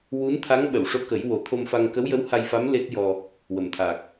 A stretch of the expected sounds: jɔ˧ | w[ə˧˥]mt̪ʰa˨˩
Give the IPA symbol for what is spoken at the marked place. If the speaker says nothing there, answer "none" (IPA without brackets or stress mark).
ə˨˩˨